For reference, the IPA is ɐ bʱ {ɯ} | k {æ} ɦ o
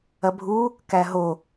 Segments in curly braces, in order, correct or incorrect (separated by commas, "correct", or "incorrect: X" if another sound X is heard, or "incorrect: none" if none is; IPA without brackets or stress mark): incorrect: u, correct